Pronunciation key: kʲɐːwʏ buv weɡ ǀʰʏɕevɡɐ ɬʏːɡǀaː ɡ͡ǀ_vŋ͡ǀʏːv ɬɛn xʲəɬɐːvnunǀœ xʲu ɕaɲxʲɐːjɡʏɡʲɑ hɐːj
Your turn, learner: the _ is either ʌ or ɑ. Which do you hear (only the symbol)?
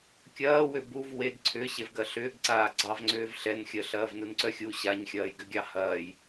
ɑ